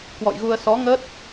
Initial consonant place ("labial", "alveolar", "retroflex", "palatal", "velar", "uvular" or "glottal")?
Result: velar